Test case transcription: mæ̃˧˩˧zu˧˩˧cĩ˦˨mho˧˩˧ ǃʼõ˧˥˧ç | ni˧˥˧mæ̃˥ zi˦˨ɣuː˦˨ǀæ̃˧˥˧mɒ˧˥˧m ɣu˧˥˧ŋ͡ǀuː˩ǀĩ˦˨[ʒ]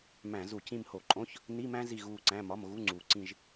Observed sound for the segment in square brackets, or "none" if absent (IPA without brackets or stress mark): ʒ